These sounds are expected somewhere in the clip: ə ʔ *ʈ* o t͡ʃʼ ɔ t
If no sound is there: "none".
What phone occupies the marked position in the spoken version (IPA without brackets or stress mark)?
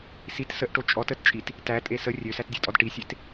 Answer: ʈ